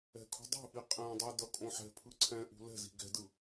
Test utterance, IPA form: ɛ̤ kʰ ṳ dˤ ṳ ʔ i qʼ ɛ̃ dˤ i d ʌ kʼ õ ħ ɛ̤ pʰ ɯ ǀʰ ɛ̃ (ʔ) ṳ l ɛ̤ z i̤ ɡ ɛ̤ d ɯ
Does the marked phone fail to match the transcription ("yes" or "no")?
no